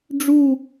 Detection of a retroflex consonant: present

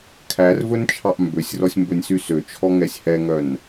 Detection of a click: absent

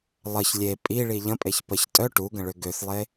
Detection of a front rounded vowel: present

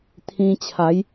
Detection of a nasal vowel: present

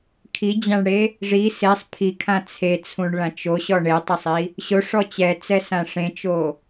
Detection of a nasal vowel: present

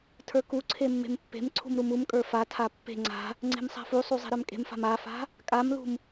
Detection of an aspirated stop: present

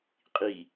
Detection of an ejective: present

